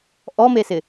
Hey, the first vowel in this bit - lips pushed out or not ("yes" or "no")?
yes